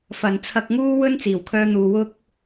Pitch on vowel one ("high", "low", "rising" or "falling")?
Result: low